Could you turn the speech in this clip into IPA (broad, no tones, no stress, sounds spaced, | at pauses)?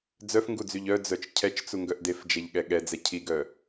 d͡z œ f ŋ ɡ u d͡z y ʎ œ d͡z œ t͡ʃ cʰ ɛ t͡ʃ t͡s u ŋ ɡ œ ʔ d e f d͡ʒ ɛ ʎ ɠ ɛ ɠ ɛ d͡z ɛ cʰ i ɡ œ